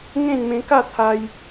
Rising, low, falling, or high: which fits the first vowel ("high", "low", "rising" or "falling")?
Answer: falling